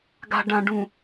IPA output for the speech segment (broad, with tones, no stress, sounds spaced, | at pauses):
ɡ a̤˨ ɖ ã˨ ɖ ũ˨